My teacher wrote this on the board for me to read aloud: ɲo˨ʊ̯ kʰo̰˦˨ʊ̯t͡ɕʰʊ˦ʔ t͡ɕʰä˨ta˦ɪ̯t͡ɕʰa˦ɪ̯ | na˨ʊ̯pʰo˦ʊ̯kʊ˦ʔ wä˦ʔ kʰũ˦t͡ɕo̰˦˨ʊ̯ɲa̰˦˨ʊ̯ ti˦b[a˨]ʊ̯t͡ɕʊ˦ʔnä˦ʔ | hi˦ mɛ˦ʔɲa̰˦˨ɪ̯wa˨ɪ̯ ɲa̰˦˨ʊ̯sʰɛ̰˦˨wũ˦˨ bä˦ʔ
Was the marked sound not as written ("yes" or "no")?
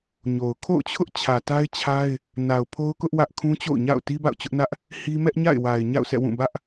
yes